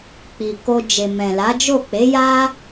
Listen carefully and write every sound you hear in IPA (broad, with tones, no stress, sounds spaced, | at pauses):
k͡p i˨ k o˧ d͡ʒ e˨ m ɛ̃˨ l a˨˦ d͡ʒ o˦˨ k͡p e˨˦ j a˦